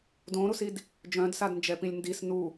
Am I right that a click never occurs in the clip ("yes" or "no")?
yes